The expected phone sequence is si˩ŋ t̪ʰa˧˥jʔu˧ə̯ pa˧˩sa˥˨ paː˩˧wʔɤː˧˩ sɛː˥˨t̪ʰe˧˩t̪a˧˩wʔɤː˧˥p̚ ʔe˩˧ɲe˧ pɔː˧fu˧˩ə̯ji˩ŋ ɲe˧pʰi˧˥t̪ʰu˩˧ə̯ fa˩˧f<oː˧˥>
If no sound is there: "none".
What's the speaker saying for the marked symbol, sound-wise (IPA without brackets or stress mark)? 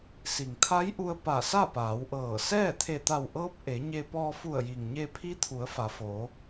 oː˩˧